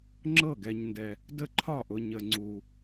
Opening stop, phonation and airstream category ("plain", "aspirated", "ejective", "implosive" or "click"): click